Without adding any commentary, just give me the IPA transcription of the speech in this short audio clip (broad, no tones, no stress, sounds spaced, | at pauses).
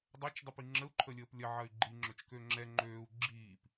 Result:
dˤ ɛ t͡ʃ dˤ i p i ŋ͡ǁ ə u̯ ǃʰ ə lʲ əː p lʲ ɐ ʕ ɐ y̯ ɡ͡ǃ i ŋ͡ǁ ø t͡ʃ k ø ŋ͡ǁ ɛ ŋ͡ǃ øː u̯ ɡ͡ǁ iː p